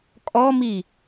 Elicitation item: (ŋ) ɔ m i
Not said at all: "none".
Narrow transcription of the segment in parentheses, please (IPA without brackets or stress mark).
kʼ